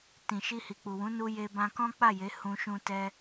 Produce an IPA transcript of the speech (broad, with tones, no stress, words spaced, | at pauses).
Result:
tĩ˨ʃi˧ hi˨k͡pu˨wũ˨˦ nu˧je˧bã˧ kɔ̃˦k͡pa˦˨je˨˦ hũ˧ʃũ˧ tɛ˧